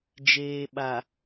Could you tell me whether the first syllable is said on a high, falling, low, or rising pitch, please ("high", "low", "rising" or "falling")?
low